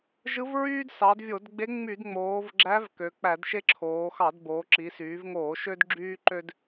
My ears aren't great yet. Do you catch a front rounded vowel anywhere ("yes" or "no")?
yes